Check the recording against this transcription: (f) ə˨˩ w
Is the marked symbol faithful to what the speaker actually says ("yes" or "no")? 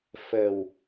yes